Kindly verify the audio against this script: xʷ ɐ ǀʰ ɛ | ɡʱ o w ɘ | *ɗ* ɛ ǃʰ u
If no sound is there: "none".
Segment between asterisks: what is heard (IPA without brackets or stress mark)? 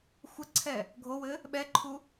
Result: ɓ